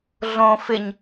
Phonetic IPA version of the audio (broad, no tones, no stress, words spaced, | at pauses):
ɮõ fɪɲ